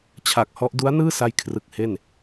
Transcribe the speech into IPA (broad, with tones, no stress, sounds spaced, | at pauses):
t͡ɕʰ a˨˩ k̚ h ɔ˦˥ ʔ d u˦˥ a̯ n ɯː˥˩ s a˧ j kʰ r ɯ˨˩ k̚ h e˥˩ n